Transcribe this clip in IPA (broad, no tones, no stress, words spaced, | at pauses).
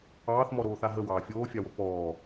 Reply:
ɑːθmɔɾoːθa ɦəwɑː fʲoːfʲɑwo pɔː